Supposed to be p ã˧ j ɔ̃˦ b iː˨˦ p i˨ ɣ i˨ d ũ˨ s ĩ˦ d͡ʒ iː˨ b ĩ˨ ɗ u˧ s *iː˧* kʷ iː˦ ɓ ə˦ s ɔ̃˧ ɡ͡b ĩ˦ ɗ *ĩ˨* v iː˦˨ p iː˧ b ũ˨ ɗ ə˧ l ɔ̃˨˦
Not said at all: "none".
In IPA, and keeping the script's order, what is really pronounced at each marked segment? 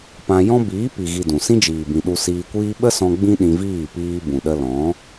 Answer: iː˧, ĩ˧

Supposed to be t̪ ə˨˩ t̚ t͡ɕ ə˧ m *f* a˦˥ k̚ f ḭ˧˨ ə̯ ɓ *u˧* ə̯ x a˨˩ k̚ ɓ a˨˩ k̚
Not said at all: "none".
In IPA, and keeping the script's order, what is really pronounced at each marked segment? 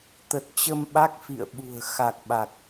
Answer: ɓ, ṳ˨˩

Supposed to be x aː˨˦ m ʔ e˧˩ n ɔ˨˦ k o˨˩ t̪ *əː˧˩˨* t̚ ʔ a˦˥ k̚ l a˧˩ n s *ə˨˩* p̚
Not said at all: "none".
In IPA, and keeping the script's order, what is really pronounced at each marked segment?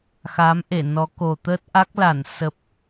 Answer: əː˦˥, ə˨˩

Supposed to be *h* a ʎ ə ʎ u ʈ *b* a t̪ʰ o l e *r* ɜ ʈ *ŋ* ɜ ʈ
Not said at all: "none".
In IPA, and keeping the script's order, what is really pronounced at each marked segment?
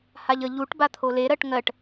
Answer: h, b, ɾ, ŋ

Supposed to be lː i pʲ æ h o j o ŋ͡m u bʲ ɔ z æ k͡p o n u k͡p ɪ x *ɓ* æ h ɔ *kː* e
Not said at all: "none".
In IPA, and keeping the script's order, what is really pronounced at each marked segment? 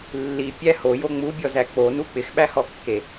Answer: ɓ, kː

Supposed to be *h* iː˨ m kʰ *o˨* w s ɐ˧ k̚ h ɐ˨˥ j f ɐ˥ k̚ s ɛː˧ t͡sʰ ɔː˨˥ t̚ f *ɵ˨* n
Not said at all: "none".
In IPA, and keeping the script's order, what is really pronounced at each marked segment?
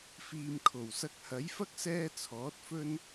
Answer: f, o˨˩, ɵ˥

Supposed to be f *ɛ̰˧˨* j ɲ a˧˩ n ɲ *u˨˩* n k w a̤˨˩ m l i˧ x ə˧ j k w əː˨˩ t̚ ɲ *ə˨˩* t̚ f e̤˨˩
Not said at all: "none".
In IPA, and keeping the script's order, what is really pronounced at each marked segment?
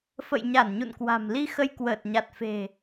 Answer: ə̰˧˨, ṵ˧˨, a˨˩

